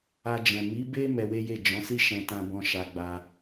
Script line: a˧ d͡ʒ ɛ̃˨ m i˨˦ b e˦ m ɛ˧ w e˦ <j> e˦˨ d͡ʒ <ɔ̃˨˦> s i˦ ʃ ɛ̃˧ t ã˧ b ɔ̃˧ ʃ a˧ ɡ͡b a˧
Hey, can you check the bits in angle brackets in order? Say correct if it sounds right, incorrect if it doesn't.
correct, correct

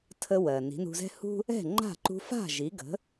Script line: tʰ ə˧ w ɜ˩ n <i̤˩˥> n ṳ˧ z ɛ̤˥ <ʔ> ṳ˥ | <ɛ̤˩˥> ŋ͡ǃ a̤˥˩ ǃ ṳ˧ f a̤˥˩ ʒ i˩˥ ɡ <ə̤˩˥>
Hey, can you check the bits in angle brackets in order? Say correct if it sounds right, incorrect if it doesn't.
correct, incorrect: h, incorrect: ɛ̤˥˩, correct

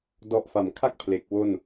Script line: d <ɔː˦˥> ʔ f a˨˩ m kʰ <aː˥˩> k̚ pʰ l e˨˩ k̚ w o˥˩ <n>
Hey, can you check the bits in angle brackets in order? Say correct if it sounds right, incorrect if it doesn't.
incorrect: ɔ˦˥, incorrect: a˥˩, correct

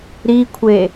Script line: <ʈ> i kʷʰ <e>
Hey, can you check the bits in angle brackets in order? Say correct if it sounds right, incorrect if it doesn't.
incorrect: ɾ, correct

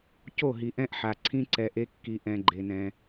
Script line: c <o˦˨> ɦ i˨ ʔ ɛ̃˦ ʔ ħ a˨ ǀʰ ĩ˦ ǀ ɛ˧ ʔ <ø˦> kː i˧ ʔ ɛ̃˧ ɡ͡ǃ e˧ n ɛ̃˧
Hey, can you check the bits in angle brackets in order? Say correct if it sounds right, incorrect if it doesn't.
correct, incorrect: e˦

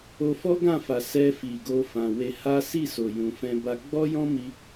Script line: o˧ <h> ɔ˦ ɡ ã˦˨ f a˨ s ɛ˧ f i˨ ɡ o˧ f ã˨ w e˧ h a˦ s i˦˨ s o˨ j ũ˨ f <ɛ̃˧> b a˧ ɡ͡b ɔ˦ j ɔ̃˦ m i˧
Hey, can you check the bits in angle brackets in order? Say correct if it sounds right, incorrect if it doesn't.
incorrect: f, correct

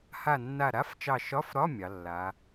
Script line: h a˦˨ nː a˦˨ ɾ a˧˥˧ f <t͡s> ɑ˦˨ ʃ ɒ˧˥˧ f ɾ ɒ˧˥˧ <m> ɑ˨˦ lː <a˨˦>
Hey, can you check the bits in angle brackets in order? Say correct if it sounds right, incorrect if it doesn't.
incorrect: t͡ʃ, incorrect: mʲ, correct

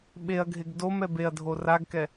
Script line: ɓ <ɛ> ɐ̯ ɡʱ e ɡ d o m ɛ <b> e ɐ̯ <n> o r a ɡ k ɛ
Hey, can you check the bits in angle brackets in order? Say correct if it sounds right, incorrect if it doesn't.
incorrect: e, correct, incorrect: dʱ

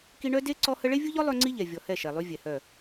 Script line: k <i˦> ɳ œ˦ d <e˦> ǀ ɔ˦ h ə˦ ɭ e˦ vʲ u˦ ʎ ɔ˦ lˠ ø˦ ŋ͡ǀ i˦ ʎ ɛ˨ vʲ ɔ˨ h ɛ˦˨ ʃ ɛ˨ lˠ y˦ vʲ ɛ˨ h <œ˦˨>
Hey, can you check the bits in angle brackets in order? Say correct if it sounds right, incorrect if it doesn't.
correct, correct, correct

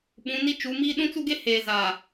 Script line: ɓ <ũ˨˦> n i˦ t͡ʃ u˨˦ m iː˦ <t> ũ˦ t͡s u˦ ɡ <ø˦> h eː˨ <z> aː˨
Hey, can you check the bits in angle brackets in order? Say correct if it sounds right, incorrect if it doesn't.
correct, incorrect: ɗ, incorrect: e˦, correct

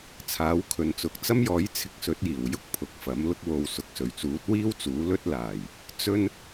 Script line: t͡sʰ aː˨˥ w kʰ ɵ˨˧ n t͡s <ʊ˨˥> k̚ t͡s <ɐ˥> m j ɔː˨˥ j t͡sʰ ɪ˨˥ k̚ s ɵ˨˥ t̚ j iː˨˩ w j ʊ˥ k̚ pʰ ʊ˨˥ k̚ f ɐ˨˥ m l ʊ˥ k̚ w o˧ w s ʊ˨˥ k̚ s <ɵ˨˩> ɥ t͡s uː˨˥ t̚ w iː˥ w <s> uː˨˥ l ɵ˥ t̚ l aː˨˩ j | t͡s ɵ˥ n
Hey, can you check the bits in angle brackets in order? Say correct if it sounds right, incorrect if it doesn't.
incorrect: ʊ˨, correct, correct, incorrect: t͡s

